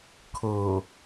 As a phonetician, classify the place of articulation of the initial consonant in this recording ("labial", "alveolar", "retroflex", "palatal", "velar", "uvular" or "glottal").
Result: velar